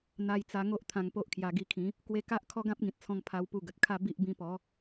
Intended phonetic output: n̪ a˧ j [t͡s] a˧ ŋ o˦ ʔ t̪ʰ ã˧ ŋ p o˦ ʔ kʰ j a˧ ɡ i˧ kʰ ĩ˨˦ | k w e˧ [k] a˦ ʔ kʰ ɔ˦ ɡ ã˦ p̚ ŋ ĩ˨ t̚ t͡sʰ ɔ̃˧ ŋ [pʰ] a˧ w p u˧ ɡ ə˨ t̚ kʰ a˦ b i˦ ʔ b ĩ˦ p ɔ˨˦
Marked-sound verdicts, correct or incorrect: correct, correct, correct

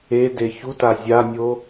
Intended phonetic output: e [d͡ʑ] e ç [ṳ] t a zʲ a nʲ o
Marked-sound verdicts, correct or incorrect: incorrect: d, incorrect: u

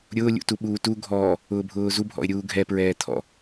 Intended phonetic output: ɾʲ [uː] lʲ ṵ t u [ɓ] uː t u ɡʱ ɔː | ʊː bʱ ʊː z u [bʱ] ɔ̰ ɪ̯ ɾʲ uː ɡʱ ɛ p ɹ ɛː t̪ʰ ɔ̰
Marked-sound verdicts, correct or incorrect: incorrect: ʊː, correct, correct

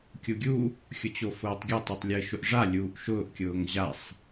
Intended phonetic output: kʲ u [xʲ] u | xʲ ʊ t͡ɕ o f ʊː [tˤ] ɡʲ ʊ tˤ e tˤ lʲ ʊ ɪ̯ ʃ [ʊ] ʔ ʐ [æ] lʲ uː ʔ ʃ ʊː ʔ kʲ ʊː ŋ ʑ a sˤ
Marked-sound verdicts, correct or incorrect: incorrect: ɡʲ, correct, correct, incorrect: a

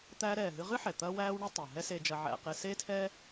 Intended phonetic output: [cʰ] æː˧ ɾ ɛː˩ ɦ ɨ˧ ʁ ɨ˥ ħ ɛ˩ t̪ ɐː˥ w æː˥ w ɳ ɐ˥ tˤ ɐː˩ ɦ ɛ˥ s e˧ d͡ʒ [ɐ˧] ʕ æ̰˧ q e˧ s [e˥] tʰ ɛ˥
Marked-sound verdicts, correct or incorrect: incorrect: t̪, correct, correct

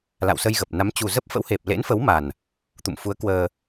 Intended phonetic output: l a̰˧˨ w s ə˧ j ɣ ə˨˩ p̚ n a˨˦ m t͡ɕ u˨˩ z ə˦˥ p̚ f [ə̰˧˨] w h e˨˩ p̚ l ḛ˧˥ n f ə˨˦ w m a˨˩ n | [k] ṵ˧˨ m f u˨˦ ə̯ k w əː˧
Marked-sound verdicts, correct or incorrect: incorrect: ə̰˧˥, incorrect: t̪

